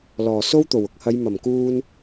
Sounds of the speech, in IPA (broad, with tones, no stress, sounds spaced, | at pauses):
l ɔː˨˩ s o˥ w t̪ o˨˩ w ʊ˨ k̚ h ɐ˨˧ j m ɐ˨˩ m k uː˧ n